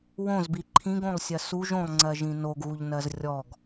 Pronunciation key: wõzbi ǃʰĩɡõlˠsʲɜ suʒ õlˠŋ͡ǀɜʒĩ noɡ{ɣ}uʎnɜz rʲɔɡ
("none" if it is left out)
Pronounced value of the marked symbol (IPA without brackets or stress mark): ɣ